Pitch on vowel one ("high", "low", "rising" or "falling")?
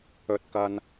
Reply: low